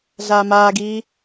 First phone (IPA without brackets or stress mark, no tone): ɮ